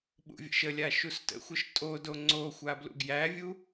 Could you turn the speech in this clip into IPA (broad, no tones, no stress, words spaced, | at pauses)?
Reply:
ɓṵvʲə̰ʃəlʲa ʃustə̰xʷəʃ tʼodo ŋ͡ǀoxʷa blṵɡjævʲu